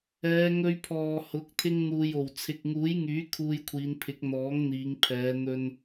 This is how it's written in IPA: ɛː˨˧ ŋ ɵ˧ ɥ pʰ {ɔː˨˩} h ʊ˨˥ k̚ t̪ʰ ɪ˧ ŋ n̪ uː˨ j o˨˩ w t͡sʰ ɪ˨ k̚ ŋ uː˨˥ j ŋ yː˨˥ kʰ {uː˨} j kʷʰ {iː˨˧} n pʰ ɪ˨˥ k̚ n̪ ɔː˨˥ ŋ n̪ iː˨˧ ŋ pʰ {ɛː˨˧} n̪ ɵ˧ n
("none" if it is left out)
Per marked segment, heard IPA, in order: ɔː˨, uː˧, iː˨˧, ɛː˨˧

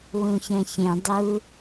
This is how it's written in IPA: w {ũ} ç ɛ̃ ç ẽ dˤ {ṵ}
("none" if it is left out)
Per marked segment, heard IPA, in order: ũ, u

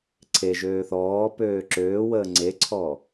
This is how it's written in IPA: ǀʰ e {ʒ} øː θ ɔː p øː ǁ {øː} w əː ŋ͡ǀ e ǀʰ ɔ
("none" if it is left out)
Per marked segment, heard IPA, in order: ʒ, øː

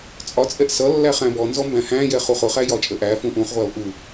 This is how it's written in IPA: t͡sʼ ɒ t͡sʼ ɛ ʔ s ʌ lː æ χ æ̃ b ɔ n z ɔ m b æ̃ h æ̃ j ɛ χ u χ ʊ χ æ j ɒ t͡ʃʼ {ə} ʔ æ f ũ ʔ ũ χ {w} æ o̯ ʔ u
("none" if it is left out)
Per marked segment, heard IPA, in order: ə, ʁʷ

